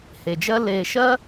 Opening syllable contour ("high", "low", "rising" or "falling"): low